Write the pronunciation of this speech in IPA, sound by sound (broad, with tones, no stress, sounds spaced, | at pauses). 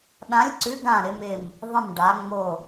ɗ ã˨˥ lʲ ǀ ʉ˨˥ ɡ ã˧˩ ɾ ɪ˩˧ m ɪ˧˩ m | ðˤ ə̃˧˩ m ɖ a˩˧ ŋ͡m o˧˩